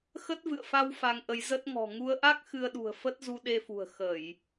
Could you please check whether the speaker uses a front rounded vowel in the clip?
no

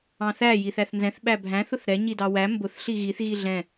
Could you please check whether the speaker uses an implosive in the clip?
yes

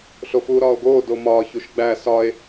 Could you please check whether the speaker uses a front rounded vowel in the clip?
no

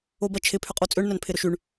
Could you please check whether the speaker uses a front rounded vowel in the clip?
yes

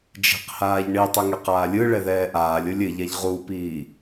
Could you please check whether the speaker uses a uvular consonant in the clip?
yes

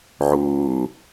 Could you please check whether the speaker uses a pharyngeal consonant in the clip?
yes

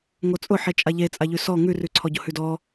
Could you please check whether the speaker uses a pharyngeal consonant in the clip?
yes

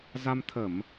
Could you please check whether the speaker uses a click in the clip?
no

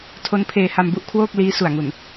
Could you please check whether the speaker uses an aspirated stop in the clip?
yes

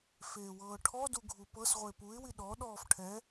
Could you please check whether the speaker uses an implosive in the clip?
yes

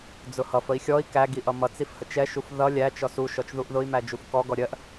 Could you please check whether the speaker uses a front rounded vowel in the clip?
no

